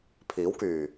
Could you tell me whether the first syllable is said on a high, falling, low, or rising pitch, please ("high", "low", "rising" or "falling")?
rising